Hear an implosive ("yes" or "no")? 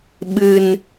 yes